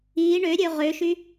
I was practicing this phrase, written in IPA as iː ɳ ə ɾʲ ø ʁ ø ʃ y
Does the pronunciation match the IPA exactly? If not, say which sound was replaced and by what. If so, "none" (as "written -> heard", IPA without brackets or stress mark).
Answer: ə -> ø